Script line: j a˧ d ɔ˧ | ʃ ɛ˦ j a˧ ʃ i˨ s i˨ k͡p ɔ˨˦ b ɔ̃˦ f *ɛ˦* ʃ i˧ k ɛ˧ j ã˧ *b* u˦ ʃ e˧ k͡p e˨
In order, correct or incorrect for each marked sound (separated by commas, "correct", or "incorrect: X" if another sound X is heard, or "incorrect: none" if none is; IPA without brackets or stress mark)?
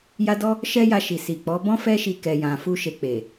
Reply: correct, incorrect: f